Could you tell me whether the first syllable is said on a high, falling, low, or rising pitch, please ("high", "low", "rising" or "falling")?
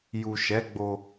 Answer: low